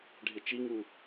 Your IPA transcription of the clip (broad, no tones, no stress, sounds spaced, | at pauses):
ɖʱ ɪ t͡ʃ i ŋ u